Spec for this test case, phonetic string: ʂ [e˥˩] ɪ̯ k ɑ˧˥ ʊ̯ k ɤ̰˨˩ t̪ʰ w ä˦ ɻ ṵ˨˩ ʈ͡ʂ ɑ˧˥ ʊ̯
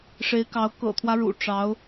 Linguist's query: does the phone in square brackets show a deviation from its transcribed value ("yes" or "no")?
yes